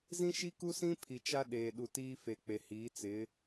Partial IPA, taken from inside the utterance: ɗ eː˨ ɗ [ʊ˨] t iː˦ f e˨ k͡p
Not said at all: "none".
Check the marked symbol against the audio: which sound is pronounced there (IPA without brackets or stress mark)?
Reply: u˨